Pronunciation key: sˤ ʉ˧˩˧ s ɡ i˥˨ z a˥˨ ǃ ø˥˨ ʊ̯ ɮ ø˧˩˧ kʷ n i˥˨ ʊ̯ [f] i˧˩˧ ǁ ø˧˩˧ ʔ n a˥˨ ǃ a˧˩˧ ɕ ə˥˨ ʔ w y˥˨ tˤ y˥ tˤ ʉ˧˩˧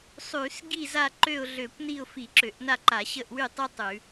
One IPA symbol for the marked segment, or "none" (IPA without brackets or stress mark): f